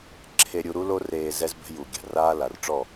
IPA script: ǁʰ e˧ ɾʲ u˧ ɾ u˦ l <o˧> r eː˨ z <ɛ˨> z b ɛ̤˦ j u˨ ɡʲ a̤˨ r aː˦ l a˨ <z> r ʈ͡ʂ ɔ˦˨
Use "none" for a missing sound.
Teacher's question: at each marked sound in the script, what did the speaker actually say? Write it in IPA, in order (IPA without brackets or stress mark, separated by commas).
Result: o˧, ɛ˦, none